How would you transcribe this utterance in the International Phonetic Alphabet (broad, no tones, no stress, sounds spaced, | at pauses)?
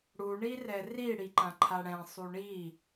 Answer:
ɽ u ɳ i r ɛ r i ɽ i ǃ ã ǃʰ a ɽ ɛ̃ sˤ u ɳ i